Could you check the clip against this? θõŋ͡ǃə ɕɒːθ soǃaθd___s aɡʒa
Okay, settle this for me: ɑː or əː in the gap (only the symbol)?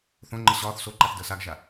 əː